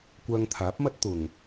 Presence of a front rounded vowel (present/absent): present